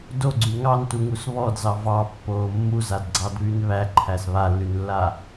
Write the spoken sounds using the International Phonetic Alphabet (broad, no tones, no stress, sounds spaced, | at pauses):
d o ɡ͡ǀ y ŋ ɑ n t u ŋ u s β ɔ d z ɑ v ɑ pː oː mː u z a d ɡ͡ǀ ɑ d β y n β æ ǃʰ æ s β a lː y n lː a